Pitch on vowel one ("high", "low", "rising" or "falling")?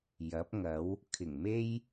rising